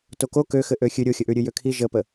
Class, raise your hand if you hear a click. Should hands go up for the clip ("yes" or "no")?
no